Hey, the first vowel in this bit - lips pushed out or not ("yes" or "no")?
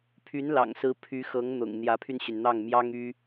yes